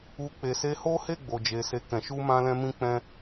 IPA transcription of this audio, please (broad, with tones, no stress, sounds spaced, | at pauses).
u˧ k͡p e˨ s e˧ h o˦ h e˦˨ ɡ͡b o˨ d͡ʒ e˨ s e˧ k ɛ̃˨ ʃ u˧ m ã˧ l ɛ̃˧ m ĩ˧ k͡p ɛ̃˧